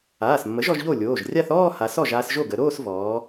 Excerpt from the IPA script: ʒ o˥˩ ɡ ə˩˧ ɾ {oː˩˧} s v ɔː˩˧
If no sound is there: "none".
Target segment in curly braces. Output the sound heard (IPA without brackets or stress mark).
oː˥˧